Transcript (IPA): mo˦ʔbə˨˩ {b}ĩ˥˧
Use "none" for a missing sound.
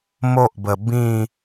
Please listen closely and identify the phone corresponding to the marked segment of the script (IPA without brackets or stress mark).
b